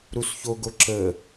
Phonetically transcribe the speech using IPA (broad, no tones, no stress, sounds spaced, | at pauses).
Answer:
ɾ u s ç o ɡ o ǁ ə